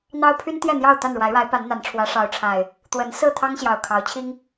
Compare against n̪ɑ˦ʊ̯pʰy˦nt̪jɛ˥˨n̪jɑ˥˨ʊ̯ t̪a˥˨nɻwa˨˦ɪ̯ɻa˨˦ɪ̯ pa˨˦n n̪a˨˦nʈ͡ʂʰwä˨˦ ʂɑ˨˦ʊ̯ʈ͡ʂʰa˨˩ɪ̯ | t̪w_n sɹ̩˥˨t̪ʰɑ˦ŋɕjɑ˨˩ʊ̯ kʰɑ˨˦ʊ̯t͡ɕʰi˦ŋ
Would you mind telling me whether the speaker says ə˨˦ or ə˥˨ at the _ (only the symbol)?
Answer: ə˨˦